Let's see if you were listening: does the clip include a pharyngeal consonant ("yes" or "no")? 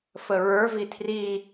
no